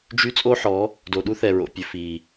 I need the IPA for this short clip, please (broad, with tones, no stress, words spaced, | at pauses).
d͡ʒy˦ t͡sʼoː˦ħɔ˨˦ | do˨ɗu˦θɛ˨ɹo̰˨ pʲɵ˨fiː˨